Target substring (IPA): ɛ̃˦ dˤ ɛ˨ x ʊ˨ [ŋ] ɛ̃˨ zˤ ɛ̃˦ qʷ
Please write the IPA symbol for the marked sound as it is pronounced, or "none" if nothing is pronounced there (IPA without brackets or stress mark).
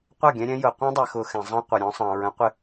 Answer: x